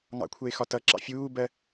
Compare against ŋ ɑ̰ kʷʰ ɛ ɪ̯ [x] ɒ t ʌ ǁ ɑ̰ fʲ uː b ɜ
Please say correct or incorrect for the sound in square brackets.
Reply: correct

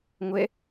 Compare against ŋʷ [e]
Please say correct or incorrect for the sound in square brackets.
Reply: incorrect: ɛ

